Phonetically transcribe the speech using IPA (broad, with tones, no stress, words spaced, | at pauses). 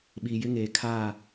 ɓi˨jɪ˦ŋeː˨kʰaː˦˨